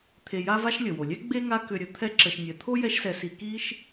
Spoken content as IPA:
t̪ʰ e˨ j a˦ v a˦ ʃ lʲ ə˩ w o˩ lʲ ɛ˥ ɡ͡b e˥ ŋ a˦ k ʏ˨ ɾʲ ə˨ t̪ʰ ɛ˦ ǁ ə˨ ʃ nʲ ɛ˩ t̪ʰ o˥ j ɛ˦ ʃ s ɛ˨ s i˨ k i˥ ʃ

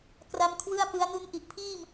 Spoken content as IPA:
k r a˦˥ m kʰ w ɯ˥˩ a̯ p ɯ˦˥ a̯ n u˧ n ʔ i˨˩ ʔ pʰ iː˥˩ m

